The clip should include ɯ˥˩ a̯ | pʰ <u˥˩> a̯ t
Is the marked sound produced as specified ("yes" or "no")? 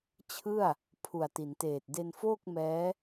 no